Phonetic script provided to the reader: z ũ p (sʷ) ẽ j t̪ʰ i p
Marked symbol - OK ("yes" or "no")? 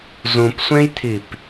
yes